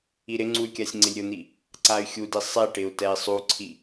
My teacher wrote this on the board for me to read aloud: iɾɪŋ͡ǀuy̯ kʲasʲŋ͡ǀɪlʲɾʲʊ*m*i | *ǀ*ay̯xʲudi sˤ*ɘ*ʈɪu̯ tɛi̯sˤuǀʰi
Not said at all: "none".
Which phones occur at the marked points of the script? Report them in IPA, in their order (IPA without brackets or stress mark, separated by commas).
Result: n̪, ǀ, e